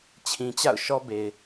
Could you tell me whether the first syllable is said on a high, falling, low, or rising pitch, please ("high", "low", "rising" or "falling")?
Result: low